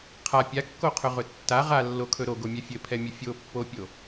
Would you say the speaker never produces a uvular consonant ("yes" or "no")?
no